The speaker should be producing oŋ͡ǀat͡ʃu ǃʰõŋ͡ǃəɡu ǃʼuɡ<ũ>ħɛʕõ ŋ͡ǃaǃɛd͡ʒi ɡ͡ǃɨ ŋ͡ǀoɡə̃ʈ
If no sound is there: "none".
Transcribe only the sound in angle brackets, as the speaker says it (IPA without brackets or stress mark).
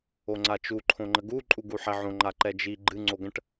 u